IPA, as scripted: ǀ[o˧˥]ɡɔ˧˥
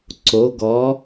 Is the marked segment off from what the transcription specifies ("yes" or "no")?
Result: no